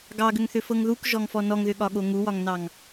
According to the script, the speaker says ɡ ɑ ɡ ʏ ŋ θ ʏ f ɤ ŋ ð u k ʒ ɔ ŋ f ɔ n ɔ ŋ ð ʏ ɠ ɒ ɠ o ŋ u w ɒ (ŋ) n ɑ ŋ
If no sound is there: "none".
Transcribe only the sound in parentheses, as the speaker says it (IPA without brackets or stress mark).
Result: ŋ